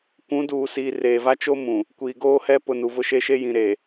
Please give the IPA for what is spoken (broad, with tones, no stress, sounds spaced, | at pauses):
kʷ ũ˨˦ d uː˨ s iː˨ r eː˨ v a˦ t͡ʃ o˦ m ũ˨ | kʷ iː˨ ɡ oː˦ h ɛ˦ p ʊ˨ n u˨ v ʊ˦ ʃ e˦ ʃ e˦ j ĩ˨ ɾ eː˨